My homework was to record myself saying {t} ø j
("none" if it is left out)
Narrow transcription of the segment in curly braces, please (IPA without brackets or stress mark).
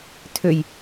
tʰ